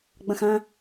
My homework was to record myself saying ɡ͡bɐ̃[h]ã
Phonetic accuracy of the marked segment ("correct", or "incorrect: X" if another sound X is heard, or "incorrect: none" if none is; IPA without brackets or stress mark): incorrect: x